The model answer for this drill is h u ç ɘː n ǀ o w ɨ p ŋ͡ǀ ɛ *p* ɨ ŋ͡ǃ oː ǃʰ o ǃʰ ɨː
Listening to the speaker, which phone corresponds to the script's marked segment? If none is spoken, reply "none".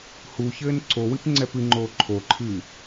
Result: p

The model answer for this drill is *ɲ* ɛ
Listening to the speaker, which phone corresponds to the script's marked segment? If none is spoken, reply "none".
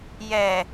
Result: j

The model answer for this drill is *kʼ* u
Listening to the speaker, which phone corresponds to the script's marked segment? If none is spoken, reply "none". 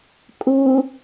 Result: kʼ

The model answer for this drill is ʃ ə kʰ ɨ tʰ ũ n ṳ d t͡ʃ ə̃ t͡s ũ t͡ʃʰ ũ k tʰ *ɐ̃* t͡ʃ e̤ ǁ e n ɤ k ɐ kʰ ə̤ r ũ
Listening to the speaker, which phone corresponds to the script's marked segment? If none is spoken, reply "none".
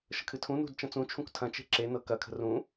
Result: ɐ̃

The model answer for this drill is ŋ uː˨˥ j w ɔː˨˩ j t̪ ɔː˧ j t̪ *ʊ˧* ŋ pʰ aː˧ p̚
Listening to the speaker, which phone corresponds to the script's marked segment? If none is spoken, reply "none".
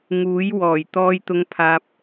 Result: ʊ˧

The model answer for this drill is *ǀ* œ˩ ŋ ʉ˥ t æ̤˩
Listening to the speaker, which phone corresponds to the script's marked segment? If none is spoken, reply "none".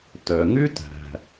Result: t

